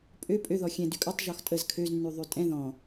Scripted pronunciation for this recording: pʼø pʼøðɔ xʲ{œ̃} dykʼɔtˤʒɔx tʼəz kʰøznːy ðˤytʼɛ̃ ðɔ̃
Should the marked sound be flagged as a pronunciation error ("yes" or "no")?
yes